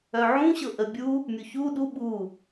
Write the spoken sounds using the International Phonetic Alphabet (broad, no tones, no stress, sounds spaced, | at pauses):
œ ʕ ũ ɕ ɤ ʔ ə bʲ u | mʲ u ç u ɗ u ɓ u